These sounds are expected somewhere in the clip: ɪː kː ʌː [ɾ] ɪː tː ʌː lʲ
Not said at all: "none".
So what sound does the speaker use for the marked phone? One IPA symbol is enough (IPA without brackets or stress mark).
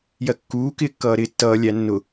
ɾ